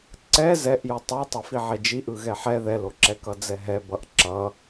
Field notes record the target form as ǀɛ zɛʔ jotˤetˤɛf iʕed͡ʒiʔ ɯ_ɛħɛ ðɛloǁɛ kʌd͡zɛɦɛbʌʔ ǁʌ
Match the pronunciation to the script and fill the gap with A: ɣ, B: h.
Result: A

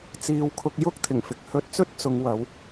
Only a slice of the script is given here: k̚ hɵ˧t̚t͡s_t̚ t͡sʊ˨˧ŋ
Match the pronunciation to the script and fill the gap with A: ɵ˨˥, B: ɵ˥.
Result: B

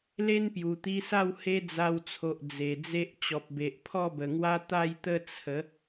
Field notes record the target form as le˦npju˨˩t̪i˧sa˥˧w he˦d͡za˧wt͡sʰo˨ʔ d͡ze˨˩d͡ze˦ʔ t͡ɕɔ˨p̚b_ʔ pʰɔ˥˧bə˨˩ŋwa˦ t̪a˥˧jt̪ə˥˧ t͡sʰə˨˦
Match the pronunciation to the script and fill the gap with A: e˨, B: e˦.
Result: A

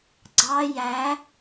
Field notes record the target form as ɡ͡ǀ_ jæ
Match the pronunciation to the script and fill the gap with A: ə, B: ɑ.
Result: B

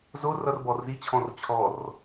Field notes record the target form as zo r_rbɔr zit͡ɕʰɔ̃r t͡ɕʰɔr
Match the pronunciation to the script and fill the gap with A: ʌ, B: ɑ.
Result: A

